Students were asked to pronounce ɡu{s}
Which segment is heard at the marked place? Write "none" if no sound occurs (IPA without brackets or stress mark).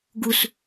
s